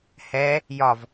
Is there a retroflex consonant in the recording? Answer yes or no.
no